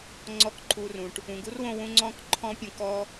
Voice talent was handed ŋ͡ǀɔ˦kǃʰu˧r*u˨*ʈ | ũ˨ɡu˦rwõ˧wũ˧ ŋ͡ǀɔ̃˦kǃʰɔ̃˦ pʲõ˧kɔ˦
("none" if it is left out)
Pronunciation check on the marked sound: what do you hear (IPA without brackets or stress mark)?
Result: ũ˨